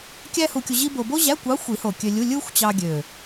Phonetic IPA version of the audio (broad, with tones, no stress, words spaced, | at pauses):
kʲæ˥hu˧kʲu˧ ʑi˥bo˧ bo˥ʑæ˧˥˧kʷɑ˧˥ xʷi˨˩˦ho˨˩ kʲø˧lʲu˧˥˧ lʲɯ˥xʷt͡ɕɑ˧ɡʲø˨˩